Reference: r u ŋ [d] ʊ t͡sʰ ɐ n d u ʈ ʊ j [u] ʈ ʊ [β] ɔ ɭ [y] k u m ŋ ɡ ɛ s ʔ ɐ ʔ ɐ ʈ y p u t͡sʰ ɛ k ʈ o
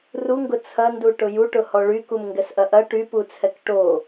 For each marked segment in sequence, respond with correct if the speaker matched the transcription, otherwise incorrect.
incorrect, correct, incorrect, correct

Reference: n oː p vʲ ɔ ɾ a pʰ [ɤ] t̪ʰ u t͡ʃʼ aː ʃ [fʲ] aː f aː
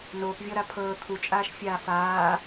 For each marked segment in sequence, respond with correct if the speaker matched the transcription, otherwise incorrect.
incorrect, correct

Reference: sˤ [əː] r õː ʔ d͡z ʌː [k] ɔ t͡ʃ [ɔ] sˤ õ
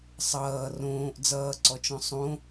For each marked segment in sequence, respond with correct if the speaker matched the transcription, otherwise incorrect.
incorrect, incorrect, incorrect

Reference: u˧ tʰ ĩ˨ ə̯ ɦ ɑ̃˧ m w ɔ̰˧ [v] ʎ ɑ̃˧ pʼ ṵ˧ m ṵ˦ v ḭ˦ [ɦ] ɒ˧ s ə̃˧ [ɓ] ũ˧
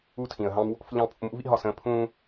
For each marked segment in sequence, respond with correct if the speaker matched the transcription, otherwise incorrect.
incorrect, correct, incorrect

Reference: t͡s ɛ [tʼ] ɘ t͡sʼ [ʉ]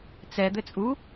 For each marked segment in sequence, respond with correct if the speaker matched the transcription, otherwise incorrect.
incorrect, incorrect

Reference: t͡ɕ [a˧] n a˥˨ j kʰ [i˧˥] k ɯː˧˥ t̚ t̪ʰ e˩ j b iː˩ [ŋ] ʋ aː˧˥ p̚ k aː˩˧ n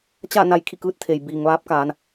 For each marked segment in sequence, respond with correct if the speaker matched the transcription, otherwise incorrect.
incorrect, incorrect, correct

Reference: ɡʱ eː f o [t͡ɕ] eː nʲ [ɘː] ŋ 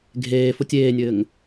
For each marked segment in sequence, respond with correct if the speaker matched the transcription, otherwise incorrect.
incorrect, correct

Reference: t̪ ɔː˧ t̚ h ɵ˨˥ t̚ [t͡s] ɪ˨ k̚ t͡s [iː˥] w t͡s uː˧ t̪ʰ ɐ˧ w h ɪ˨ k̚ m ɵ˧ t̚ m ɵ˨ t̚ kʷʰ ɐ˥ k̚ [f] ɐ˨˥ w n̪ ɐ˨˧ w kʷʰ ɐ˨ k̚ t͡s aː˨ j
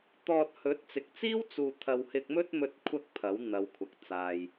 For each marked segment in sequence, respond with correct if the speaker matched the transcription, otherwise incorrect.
correct, correct, incorrect

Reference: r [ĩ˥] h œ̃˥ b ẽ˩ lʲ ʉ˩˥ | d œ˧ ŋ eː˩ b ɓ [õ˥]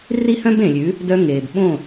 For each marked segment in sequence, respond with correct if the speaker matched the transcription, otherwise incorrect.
incorrect, incorrect

